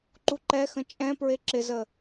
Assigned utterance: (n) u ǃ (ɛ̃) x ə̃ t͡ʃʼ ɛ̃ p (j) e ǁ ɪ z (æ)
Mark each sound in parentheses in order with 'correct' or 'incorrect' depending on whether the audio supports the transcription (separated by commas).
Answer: incorrect, incorrect, incorrect, incorrect